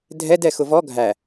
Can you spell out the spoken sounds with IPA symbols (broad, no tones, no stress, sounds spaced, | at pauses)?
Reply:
dʱ ɛ d ɛ x ʊ v ɔ ɡʱ æ